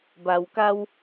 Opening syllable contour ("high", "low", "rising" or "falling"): low